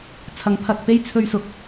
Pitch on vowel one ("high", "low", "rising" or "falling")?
rising